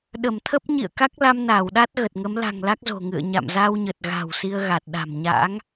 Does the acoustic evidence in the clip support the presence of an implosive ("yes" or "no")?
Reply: yes